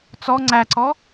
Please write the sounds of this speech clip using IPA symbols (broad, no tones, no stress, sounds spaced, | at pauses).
t͡s ɔ ŋ͡ǀ æ ǀ ɔ